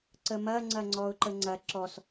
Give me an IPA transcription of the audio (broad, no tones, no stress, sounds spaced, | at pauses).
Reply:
ǀ ə m ɐ ŋ͡ǀ ɐ ŋ͡ǀ ɔ ʊ̯ ǃ ə ŋ͡ǀ ɐ ǁ ɔ s